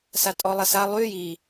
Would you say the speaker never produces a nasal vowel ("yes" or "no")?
yes